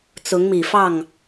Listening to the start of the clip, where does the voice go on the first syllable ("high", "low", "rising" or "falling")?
rising